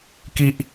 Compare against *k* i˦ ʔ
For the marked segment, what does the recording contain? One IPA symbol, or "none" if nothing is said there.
k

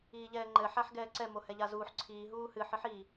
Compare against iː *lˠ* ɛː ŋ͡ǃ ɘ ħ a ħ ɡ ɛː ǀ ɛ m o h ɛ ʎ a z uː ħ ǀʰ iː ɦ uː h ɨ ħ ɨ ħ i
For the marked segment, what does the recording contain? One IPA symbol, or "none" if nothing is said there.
ʎ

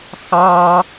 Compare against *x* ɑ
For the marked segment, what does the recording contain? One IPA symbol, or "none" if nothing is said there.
x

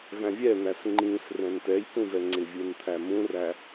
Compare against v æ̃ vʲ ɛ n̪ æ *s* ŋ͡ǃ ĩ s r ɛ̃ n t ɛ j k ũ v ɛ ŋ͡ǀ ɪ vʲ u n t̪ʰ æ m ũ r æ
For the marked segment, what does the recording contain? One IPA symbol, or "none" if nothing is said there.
s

